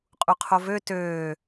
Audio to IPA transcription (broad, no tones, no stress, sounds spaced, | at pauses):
qʼ u qʰ o v ø t øː